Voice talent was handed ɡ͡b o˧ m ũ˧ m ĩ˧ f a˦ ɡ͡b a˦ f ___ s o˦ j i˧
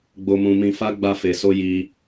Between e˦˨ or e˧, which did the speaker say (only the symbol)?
e˧